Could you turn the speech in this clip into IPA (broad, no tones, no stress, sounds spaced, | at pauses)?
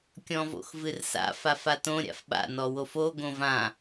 kʲ ɔ̃ v o̰ x v ɨ r s a̰ f a f a t õ ɾʲ a̰ f ɓ a̰ n ɔ w o f o ɡ õ v ã